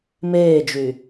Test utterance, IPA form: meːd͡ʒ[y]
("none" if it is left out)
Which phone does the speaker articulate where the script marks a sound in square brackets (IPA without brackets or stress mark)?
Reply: y